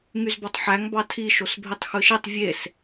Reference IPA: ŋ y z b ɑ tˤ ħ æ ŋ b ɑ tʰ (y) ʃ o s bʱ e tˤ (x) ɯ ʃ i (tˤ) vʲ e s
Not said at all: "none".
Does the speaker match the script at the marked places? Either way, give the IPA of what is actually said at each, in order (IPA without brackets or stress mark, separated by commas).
i, x, tˤ